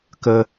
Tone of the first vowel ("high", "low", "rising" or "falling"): high